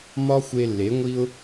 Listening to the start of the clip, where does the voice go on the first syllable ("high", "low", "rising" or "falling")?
high